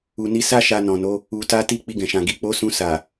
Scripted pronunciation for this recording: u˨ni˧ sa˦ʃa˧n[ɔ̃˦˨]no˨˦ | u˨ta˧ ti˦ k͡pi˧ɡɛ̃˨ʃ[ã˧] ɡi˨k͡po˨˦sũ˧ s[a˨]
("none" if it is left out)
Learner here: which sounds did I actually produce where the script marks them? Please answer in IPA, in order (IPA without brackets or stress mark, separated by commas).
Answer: ɔ̃˨, ã˨, a˨